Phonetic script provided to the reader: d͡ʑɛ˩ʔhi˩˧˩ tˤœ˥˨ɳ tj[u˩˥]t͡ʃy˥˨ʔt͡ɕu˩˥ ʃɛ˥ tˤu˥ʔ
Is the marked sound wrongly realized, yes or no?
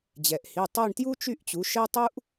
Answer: yes